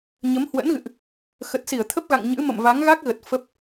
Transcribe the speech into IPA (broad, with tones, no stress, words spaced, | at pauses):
ɲə˨˦mhwə̰˧˥nɣɨ̰˧˨ʔ | xə˨˩t̚si˧˩ə̯t̪ʰə˦˥p̚ɣa̰˧˨ŋ ɲɨ̰˧˥ mə̰˧˨mva˨˦ŋɣa˦˥k̚ɣə˨˩t̚ fə˦˥p̚